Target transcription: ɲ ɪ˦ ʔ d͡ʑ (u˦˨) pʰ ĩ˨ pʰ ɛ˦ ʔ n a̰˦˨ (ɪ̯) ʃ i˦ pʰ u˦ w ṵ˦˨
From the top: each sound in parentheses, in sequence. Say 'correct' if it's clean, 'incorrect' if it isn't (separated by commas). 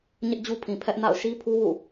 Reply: incorrect, incorrect